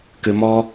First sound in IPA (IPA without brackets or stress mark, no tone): k